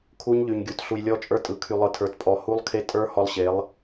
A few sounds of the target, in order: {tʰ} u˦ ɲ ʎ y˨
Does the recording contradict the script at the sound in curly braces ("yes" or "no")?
yes